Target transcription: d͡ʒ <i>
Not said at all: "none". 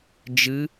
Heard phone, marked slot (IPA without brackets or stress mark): ɨ